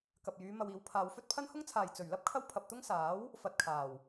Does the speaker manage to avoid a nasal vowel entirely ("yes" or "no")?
yes